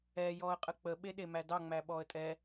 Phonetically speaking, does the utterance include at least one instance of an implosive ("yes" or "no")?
yes